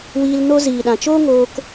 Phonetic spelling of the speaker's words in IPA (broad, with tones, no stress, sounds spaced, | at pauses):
w iː˧ l n o˦ z iː˨ ɗ ã˨ t͡ʃ oː˦ ŋ oː˧ k